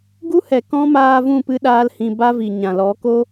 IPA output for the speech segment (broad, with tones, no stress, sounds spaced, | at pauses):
ɡ u˦ h ɛ˨ k ɔ̃˦ m aː˧ v ũ˦˨ p ɨ˧ ɗ aː˦ l h ĩ˧ b a˦ v i˨ ɲ ã˨ l ɔ˨˦ k o˦